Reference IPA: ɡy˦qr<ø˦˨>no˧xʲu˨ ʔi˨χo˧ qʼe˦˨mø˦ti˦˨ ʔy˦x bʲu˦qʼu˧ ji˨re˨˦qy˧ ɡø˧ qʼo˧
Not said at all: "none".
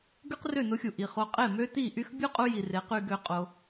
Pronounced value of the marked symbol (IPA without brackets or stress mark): ø˦˨